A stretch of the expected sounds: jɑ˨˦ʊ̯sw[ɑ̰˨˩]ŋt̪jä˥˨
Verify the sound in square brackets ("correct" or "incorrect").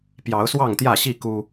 incorrect